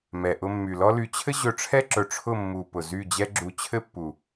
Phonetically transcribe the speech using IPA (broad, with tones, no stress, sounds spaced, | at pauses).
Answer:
m ɛ˨ ʔ ʊ˧ mː y˨ l ɔ˦ l y˧ t͡ɕʰ ɘ˦ ʑ ɵ˧ ʈ͡ʂʰ ɛ˦ ǁ ɵ˨ ʈ͡ʂʰ ʊ˦˨ mː u˨ p ʊ˨ z y˦˨ d͡ʑ ɛ˦ ɡ͡ǁ u˨ t͡ɕʰ ɘ˦ pː u˨